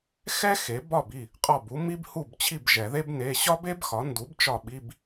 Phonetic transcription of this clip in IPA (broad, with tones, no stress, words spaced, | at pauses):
xɛ˥ xe˩˥ bɒ˥˩b i˥˩ | qʼɒ˥˩bu˥ mi˥bhu˥˩bt͡ɕʰi˥˩b ʒɛ˨˩˦ðe˥b ne˧˥˧ ɕɒ˥be˥bxɒ˩˥ndu˩˥b t͡ʃɒ˥˩ɓi˧˥˧b